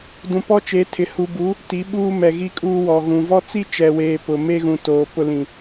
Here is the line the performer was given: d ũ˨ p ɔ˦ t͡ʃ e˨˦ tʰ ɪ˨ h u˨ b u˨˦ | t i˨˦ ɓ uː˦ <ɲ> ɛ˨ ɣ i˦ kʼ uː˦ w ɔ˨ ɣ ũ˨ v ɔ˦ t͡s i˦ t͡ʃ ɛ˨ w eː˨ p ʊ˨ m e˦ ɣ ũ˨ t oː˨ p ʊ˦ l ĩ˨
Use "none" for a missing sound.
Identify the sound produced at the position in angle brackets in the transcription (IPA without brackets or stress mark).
m